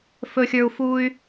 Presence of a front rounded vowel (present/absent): present